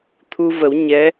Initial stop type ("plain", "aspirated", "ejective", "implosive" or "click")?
aspirated